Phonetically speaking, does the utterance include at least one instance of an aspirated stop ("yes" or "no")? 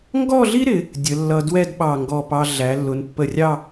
no